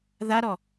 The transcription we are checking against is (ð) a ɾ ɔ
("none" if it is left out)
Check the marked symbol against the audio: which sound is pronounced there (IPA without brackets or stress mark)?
ð